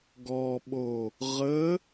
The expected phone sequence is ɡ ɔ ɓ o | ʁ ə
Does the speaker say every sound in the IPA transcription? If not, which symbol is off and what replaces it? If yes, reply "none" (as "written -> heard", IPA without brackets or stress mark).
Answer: none